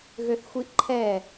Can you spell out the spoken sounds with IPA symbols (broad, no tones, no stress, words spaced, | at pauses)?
ɣøθxʷiʔǃʰɛ